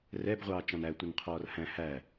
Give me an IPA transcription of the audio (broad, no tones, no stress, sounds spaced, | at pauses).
r ɛ b ʁʷ ɑː t͡ʃ ɑ̃ n æ tʷ ɪ n qʰ ɔː r h æ̃ h æ